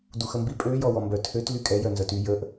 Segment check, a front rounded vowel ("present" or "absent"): present